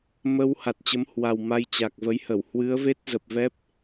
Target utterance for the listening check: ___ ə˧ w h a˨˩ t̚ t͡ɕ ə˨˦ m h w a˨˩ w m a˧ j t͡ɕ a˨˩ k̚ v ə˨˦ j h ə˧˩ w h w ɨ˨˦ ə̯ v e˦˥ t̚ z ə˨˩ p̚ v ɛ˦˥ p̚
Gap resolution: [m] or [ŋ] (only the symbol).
m